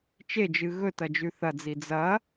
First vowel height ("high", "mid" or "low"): mid